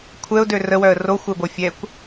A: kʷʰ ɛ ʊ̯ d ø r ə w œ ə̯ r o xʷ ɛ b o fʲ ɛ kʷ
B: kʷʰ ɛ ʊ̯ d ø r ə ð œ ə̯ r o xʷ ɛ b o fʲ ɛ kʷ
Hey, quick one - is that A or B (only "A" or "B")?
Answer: A